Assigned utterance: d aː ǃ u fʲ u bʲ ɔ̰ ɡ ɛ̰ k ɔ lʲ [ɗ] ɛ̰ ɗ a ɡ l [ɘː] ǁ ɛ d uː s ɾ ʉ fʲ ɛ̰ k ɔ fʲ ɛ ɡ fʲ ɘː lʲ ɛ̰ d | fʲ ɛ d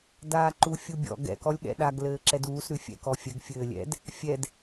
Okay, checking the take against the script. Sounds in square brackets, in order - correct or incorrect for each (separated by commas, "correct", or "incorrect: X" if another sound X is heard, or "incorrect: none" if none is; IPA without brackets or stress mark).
incorrect: ɠ, correct